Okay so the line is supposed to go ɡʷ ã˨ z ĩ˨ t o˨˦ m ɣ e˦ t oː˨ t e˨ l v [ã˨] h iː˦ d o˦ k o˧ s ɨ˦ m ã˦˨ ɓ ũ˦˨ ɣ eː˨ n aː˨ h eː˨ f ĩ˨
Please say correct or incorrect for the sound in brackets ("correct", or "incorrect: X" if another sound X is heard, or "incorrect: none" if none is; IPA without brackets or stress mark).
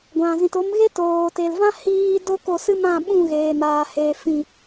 incorrect: ã˦